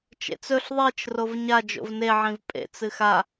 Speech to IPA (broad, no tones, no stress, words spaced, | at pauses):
t͡ʃḛt͡sɵɬ ðˤit͡ʃ rovɲa d͡ʒo̰vne ʕĩvpʼḛ t͡sɨxa